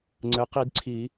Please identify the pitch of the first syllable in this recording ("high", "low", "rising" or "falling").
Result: rising